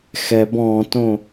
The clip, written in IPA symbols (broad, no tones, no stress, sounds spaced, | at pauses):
x ɛ b ɔ̃ t õ